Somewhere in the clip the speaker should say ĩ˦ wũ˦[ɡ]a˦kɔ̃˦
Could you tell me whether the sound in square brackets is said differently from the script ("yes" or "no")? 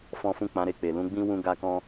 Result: no